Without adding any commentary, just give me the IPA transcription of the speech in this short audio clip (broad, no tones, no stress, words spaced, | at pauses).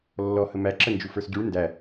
lːɔ həmæǁə nd͡ʒufə˞sɟuɭ ndæ